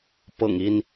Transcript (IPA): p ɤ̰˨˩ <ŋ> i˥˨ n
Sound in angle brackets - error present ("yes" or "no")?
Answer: no